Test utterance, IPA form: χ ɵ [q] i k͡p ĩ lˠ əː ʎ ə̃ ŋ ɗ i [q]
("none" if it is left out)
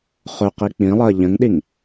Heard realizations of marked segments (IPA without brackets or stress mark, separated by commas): q, ŋ